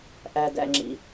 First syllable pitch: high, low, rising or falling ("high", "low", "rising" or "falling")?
low